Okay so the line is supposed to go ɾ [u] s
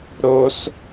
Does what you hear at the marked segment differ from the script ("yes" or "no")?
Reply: yes